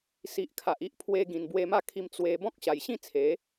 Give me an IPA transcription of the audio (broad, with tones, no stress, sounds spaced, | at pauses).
s i˨ ʔ kʰ a˨ ʔ i˦ ʔ pʰ w e˧ ɡ ĩ˨˩ n b w e˧ m a˥˧ kʰ i˧ m t͡s w e˧ b ɔ̃˦ k̚ ɕ a˨˩ j ɕ ĩ˥˧ t͡sʰ e˨˦